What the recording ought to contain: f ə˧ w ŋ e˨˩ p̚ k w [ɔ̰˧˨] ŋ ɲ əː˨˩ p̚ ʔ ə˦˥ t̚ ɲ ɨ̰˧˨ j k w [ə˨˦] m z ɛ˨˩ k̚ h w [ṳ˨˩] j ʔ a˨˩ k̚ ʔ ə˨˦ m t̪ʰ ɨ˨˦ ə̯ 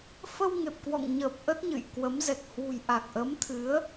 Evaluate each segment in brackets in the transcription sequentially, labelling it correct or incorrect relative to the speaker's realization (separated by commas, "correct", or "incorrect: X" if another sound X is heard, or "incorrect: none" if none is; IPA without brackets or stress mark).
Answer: correct, correct, correct